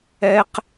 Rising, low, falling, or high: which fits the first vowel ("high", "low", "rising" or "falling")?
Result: high